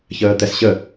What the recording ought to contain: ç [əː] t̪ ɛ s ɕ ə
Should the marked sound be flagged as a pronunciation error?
no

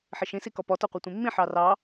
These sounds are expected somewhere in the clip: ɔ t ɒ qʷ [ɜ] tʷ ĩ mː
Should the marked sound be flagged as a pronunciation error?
no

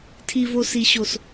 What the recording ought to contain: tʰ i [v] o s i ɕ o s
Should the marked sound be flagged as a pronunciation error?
no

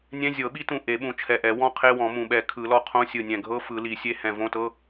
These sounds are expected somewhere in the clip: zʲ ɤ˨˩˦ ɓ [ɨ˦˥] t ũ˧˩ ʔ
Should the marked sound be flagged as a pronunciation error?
yes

